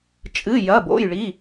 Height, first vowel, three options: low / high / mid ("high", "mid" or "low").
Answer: high